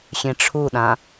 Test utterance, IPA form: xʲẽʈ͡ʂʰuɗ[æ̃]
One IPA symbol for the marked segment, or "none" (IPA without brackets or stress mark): ã